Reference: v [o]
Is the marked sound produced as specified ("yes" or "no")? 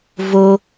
yes